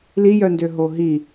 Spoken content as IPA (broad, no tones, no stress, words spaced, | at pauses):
lijœndø ɦoɦi